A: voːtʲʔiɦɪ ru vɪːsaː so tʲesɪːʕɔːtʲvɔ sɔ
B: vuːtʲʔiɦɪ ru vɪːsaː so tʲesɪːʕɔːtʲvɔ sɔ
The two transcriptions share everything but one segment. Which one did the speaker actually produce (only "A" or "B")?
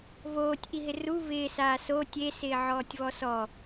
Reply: A